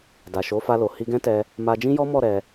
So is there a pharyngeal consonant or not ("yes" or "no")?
no